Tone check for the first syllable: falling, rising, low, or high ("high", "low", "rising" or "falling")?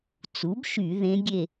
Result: rising